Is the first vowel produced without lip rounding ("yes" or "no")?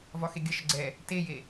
no